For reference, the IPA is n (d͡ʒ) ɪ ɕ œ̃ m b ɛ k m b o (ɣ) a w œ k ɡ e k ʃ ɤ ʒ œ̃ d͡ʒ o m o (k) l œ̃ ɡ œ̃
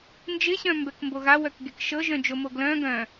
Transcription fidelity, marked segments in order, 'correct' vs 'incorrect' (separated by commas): correct, correct, incorrect